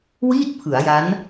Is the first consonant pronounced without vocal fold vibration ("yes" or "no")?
no